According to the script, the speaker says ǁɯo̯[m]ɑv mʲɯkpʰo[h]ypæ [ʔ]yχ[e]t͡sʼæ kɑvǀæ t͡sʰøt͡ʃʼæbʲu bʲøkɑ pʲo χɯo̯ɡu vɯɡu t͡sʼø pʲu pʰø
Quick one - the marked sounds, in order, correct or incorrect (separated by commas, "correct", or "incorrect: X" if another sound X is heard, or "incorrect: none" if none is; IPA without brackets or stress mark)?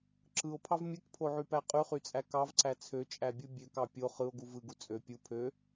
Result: incorrect: pʰ, incorrect: ʕ, incorrect: qʼ, incorrect: y